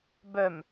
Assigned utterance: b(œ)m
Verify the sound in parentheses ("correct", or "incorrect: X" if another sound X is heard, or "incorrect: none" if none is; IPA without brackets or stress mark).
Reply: correct